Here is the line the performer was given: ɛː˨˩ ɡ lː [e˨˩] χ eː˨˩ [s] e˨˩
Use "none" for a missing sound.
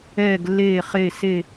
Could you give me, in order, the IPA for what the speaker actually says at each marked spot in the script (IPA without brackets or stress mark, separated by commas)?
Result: eː˨˩, s